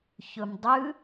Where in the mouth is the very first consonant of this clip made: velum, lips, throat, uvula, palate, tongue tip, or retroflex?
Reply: palate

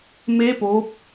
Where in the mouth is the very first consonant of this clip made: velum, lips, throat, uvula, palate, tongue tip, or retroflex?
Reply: lips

